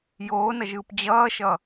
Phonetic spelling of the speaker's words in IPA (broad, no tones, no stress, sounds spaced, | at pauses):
j oː n ʌ ʒ ɯː p d͡ʑ ʌː ʃ ʌ